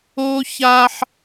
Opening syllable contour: high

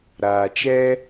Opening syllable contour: low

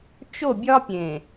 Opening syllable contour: falling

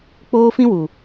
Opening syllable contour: high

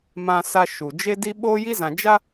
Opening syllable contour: high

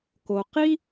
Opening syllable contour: low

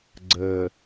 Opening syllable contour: low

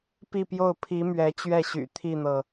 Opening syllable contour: falling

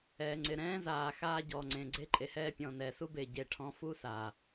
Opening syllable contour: low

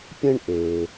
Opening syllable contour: high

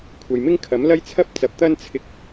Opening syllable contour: low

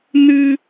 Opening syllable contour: high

